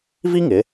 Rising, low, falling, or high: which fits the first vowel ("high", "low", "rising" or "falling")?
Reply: high